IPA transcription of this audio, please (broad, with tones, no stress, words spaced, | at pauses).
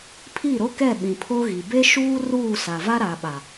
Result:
pʰi˦˨ɾo˦kɛ˦˨ɓĩ˨ pʰo˦ɣi˨ be˦ʃuː˦ ruː˦˨sa˨va˦ ɾa˨ɓa˨